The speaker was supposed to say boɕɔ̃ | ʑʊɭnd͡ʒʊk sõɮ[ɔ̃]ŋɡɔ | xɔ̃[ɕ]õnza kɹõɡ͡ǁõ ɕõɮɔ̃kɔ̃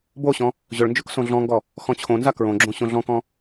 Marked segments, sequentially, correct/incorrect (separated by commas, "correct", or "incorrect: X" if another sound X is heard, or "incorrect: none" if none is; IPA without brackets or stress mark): correct, incorrect: t͡ɕʰ